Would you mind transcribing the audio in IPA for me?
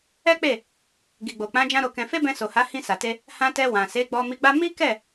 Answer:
ɛ˦ k͡p e˦˨ | ɡ i˨ ɡ͡b o˨ k͡p ã˨˦ d͡ʒ ã˦ ɾ o˧ k ɛ̃˧ f e˦ b ɛ̃˧ s o˨ h a˨˦ h ĩ˧ s a˨ t e˧ | h ã˧ t ɛ˧ w ã˨ s e˨˦ ɡ͡b ɔ˧ m i˧ ɡ͡b a˦ m i˦ k ɛ˦˨

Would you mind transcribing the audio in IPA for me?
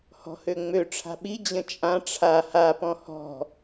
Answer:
h ɔ̤ h ø ŋ͡m ø ʈ͡ʂʰ a̤ ɓ i d͡ʑ ə̃ t͡ʃʼ ã ʈ͡ʂʰ a h a p ɔ̃ h ɔ̤

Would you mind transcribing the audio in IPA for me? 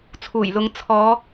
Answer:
t͡sʰ uː˨˩ j l ʊ˨˧ ŋ t͡sʰ ɔː˨˧

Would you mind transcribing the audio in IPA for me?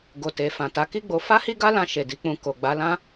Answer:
ɡ o˨ t e˨ f ã˨ t a˨˦ k i˦ ɡ͡b o˧ f a˦ h i˦ ɡ a˦ l ã˧ ʃ e˨ d i˨˦ k͡p ũ˧ k o˨ ɡ͡b a˨˦ l ã˦

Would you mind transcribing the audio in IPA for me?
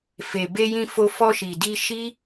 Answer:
f e˨ b e˧ j ĩ˧ f o˧ f ɔ˧ ʃ i˨ d i˧ ʃ i˦

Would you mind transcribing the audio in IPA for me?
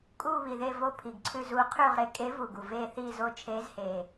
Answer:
kʼ uː˦˨ β i˨˩ ð e˦˨ v o˦˨ pʰ i˨˩ ɡ ǀʰ ʉ˦˨ z uː˧˥ qʰ ʉː˦˨ ʁ ɾ e˧˥ kʼ e˧˥ v u˨˩ ɡ u˨˩ v eː˦˨ θ iː˦˨ z o˦˨ t͡ʃʰ eː˧˥ z h eː˨˩

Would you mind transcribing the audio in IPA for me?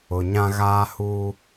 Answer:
ʊ˨ ɲ ã˦ ɣ aː˦ h uː˦

